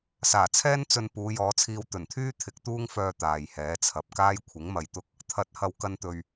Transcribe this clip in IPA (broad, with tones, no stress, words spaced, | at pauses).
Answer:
saː˨˩t͡sʰɛː˥n t͡sɵ˧n puː˨˧jɔː˨˧t͡sʰiː˧w t̪ɵ˨˩nt̪ʰyː˥ t̪ʰɪ˨˥k̚t̪uː˥ŋfœː˧ t̪aː˨jhɛː˨˥t͡sʰɐ˨p̚ kaː˥jkʷʰɪ˨˥ŋmɐ˧jt̪ʊ˥k̚ | t̪ʰɐ˨˥t̚hɐ˨wkɐ˧nt̪ɵ˨ɥ